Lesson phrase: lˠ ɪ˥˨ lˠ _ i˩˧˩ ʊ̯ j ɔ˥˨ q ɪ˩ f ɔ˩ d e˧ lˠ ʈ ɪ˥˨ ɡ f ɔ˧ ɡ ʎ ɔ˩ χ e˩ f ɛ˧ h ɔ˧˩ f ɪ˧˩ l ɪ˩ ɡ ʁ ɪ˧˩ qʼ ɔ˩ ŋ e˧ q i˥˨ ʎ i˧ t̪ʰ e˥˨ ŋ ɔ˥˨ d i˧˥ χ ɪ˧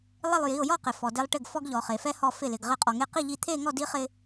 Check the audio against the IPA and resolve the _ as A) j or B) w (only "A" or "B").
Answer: A